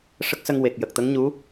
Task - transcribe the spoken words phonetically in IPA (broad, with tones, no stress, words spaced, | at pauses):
ʂə˦˥k̚sə˧ŋ we˨˩k̚ jə˨˩k̚t̪ə˧˥ŋ ɲu˧˥